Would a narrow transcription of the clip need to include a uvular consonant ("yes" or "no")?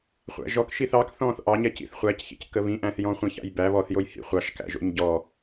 yes